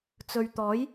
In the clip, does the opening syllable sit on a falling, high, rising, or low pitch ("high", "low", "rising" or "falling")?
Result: low